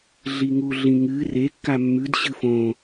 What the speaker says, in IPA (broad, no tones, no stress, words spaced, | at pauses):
ɮiŋuɮĩŋɨ rekːa mːʉd ɕɨfõ